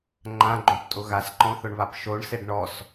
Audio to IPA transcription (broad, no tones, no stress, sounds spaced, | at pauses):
ŋ͡ǃ ã ɡ͡ǃ õ p tʼ ʊ ɣ a s ǃ ɔ̃ θ ʊ ɳ β a p ʃ o ɳ s e ɖ ɳ ɔ s